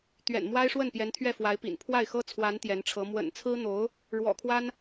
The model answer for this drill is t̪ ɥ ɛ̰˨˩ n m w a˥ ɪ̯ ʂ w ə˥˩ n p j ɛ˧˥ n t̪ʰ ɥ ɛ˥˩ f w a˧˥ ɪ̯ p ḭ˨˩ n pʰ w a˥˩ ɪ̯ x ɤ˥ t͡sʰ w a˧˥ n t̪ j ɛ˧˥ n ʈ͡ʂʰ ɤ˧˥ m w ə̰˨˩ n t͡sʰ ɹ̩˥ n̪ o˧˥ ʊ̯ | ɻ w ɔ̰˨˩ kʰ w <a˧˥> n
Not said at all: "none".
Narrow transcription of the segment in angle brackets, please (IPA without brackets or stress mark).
a˥